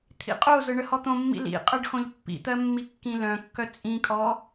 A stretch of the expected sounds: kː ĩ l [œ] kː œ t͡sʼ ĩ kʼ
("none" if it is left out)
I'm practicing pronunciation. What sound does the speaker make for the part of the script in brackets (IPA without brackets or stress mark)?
œ̃